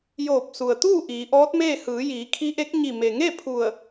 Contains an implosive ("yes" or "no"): no